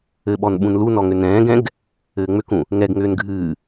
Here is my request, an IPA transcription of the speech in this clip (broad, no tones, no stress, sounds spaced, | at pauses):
ɘ ɓ ɔ n ɓ ũ n l u n ɔ ŋ ʏ n ɛ̃ː ɡ ɛ̃ ɡ | ɘː ŋ͡m ʏ k ũ | ŋ ɛ ɡ ŋ ʏː n ɡʱ ɨː